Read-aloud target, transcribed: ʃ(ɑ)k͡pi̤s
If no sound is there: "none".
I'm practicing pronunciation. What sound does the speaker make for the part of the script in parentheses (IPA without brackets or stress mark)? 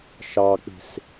ɑ